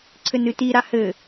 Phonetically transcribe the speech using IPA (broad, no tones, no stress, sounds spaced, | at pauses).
ǀʰ ɘ n ɨ t i ɾ a h ɘ